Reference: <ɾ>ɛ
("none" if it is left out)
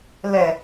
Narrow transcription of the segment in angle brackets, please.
l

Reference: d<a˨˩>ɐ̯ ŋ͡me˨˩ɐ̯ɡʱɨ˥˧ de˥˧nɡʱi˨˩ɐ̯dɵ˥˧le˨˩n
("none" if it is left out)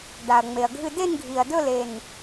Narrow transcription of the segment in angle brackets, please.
a˨˩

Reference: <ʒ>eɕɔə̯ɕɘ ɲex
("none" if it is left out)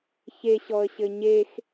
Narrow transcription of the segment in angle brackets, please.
ç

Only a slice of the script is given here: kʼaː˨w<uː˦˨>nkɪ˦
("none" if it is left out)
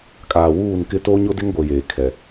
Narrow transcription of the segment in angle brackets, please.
uː˦˨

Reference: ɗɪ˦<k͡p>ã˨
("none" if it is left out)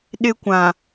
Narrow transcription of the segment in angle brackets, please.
kʷ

